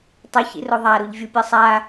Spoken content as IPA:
tˤoçḭro ðˤaɾuʎvʲu pʲɤsˤa

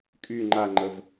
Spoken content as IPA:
kʼy ŋ͡ǃaŋ͡ǃəv

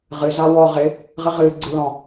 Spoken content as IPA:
ʁɨ zawɔ ʁɪ | ʁɨʁɨː ɡ͡ǀɨlɔ̃

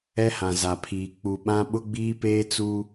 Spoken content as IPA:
ɛ˦hã˨za˨pʰiː˨ k͡pu˨ɓã˦ ɓʊ˦ɡ͡biː˦peː˦ t͡su˦

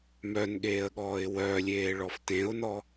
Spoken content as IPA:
mœnɠeːə̯ɠɔːɪ̯ wœlʲeːɭɔf tẽʊ̯nɔ

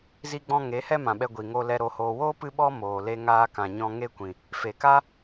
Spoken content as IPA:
zi˦ɡ͡bɔ̃˦ ŋe˨˦hɛ˦ mã˨ɓɛ˧ ɡʷi˨ŋo˧lɛ˧ ɾo˨hoː˨woː˦ pɨ˦ɓɔ˦ moː˨ le˧ŋaː˧ kã˨ɲɔ̃˧ ŋe˦kʷĩ˨ | fe˨ka˦

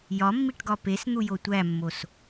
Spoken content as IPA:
jɒmːiʈɡɒ pesn̪ujo tʷæmːos

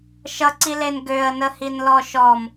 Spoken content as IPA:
ʃʌǀilen ɡøə̯nəhin lɔʃɔm

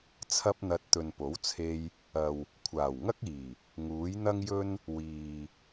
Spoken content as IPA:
t͡sʰɐ˧p̚n̪ɐ˨t̚ t̪ɵ˨npo˨˥wt͡sʰe˧j | ɐ˨w | kʷʰaː˨˩wŋɐ˥k̚iː˨˩ | ŋuː˨˥j n̪ɐ˥ŋjɵ˥n | wiː˨

